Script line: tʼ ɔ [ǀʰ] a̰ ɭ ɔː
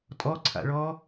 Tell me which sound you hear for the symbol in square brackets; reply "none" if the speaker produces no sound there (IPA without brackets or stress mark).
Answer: ǀʰ